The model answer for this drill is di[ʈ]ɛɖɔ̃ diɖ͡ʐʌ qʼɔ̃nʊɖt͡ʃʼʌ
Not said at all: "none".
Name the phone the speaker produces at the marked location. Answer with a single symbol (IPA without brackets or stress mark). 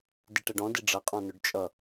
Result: ʈ